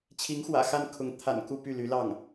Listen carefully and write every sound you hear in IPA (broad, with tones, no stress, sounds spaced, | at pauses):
t͡ɕʰ i˧˥ ŋ x w ä̰˨˩ x a˥˩ n kʰ ʊ˧˥ ŋ t̪ʰ a̰˨˩ n k u˥˧ p y˥˩ l y˧˥ l ɑ˥˩ ŋ